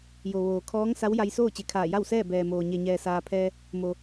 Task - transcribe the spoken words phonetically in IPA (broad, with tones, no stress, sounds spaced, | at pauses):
j o˩ ʋ oː˩ kʰ ɔː˧˥ ŋ s a˧˥ w j a˧ j s oː˥˨ t͡ɕ e˧˩ kʰ aː˧˩ j a˥˨ w s ɛː˥˨ b ɛː˩ m oː˩ ɲ e˩ ɲ ɛː˩ s aː˩ pʰ ɛː˧ | m o˩